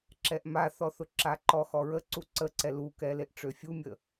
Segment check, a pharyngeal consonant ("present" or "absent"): absent